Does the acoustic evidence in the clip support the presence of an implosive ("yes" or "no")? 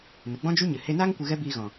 no